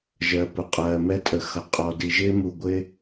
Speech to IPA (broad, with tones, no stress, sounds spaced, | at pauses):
ʒ ɜ˨ p ʊ˨ qʼ ɜː˨ m ɛ˦ tʼ ə˨ x ʌ˨ qʼ ɔ˨ d i˨ ʒ ɪː˦ m u˨ ɡʷ ɪː˦